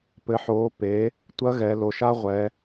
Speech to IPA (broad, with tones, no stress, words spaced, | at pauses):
pɘ˩˧ħoː˩˧ pe˩˧ | tʷɐ˧˥ɣɛ˩˧ lo˩ʃa˧ ʁʷɛ˩˧